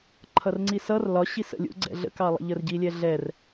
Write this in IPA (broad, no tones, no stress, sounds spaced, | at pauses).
ǃʰ ʌ r ŋ͡ǀ i s ʌ r l ɒ ɕ i s ə̰ lʲ ṵ ɡ͡ǀ ɛ̰ ɮ ə̰ k ɑ lˠ ə̰ ʎ ə r ɟ i lʲ ɛ ɮ ɛ r